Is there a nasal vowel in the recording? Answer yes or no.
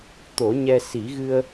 no